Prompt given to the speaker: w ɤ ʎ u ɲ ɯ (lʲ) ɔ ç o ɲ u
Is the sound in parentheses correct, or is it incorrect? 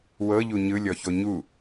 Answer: correct